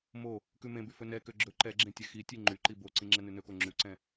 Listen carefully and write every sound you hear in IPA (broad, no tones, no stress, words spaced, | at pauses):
mo | kʉmẽby fɵnɛkø ɡ͡ǁɵ ǃɛɡ͡ǁẽ tʲɛxitʲe ŋ͡ǃyǃi boǀĩ ŋ͡ǁɛnʉnɵko ŋ͡ǁʉǀɛ̃